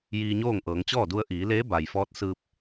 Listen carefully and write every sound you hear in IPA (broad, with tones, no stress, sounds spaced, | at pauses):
j iː˧ ɲ oː˥˨ ŋ ʔ ɤː˩˧ ŋ t͡ɕ ɔː˥˨ d u˧ ə̯ ʔ iː˩˧ l eː˧˥ b a˩ j f ɔː˧˥ t̚ s ɯː˧ p̚